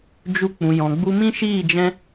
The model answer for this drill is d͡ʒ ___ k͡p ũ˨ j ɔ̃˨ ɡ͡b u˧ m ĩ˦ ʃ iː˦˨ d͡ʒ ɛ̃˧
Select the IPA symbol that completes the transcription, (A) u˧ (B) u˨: A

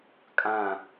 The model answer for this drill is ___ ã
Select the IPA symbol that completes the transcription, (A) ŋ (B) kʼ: B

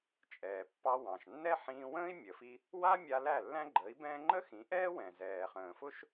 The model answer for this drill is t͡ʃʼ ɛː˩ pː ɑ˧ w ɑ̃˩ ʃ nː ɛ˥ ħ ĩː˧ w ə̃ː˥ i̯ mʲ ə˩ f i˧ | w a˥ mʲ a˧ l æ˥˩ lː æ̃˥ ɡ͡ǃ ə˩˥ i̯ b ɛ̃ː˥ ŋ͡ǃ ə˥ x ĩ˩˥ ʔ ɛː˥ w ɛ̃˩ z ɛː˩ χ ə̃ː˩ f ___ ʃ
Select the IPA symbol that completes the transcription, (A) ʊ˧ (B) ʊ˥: B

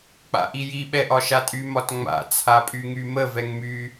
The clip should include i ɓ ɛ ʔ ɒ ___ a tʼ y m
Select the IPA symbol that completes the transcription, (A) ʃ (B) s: A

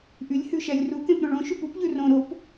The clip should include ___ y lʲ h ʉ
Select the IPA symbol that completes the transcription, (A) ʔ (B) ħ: A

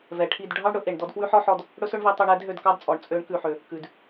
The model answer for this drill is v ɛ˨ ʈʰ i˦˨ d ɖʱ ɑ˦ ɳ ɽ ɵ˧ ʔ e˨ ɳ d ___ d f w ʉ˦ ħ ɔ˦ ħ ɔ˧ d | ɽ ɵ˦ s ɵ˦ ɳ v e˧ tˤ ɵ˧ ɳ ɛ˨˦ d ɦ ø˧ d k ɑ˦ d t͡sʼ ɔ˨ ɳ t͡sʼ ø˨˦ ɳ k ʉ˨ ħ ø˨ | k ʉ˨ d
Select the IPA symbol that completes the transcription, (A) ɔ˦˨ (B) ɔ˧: B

